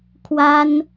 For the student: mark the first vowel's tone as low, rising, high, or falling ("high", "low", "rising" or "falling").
high